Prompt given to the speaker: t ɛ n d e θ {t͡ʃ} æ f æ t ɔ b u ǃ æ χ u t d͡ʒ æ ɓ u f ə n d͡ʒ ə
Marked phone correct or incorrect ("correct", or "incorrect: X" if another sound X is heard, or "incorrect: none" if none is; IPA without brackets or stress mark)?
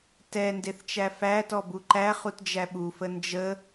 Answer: correct